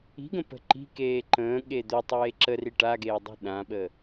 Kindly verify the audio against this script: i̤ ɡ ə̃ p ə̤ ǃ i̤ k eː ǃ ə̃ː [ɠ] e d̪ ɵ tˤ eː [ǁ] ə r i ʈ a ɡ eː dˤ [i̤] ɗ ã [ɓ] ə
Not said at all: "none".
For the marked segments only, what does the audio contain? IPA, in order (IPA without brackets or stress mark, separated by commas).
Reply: ɠ, ǁ, i̤, ɓ